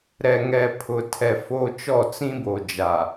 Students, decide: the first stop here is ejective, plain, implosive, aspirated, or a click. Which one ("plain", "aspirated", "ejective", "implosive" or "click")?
aspirated